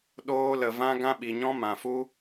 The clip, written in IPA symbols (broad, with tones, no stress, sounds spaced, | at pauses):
ɗ oː˦ l ə˧ v ã˦ ɡ ã˦ ɓ i˧ ɲ ɔ̃˦ m ã˧ f u˦